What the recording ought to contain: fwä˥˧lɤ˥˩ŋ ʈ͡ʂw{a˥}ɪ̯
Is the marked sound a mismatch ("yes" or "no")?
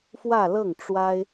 no